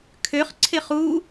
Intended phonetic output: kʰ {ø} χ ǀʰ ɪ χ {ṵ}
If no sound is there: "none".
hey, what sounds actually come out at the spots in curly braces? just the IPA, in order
ø, u

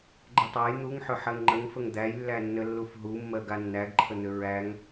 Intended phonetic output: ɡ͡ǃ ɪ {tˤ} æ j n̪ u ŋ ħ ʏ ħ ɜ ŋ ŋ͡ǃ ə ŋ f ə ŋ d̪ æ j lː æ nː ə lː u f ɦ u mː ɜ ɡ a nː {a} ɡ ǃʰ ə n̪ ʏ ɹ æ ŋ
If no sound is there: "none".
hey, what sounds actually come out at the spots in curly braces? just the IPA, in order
tˤ, æ

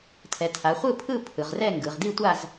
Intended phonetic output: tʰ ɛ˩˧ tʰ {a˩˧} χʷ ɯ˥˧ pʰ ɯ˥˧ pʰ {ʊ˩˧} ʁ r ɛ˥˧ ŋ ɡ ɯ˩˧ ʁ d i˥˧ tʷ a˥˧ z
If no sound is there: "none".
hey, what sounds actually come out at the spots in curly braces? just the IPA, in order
a˩˧, ɯ˩˧

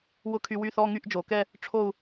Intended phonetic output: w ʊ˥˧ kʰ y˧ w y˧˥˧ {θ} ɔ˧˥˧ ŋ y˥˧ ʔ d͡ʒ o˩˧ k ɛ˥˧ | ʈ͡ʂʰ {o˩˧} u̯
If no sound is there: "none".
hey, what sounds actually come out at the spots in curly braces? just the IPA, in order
θ, o˥˧

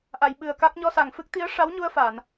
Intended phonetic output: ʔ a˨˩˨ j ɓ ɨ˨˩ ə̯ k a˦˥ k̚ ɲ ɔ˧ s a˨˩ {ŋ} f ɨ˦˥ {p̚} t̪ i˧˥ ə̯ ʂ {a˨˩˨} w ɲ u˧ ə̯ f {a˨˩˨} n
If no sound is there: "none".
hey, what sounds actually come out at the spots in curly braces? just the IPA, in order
ŋ, k̚, a˧˥, a˨˩˨

